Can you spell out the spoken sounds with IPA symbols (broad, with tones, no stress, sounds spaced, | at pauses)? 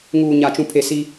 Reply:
ŋ uː˨ ɲ a˨ t͡ʃ ũ˨ pʰ e˨ s i˦